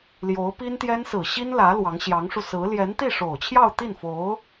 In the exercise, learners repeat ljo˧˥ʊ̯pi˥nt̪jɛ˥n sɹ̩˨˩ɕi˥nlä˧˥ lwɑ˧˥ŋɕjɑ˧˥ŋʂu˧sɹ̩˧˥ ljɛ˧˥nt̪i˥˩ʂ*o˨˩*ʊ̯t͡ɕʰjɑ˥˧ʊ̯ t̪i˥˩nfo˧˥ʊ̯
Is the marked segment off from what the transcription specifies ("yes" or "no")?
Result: no